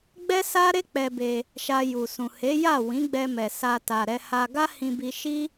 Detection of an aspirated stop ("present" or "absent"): absent